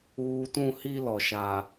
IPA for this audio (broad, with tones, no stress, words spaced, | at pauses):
uː˨tũ˦˨ hi˦lɔ˨ ʃa˨